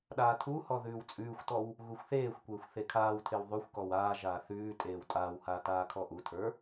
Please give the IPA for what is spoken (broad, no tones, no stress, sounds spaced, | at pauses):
ɗ aː tʰ u h ɔ ð ʉː w t͡sʼ ʉː xʷ t ɔ w | ɣ u xʷ θ eː xʷ kʷ eː xʷ θ e kʰ aː w tʰ e w ðˤ ʉ xʷ k ɔ w aː ʒ aː θ ʉː tʼ eː w tʼ aː w h aː t aː kʰ ɔ ʔ u tʰ ə˞